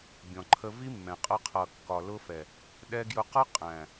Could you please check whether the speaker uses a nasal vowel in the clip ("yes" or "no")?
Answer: yes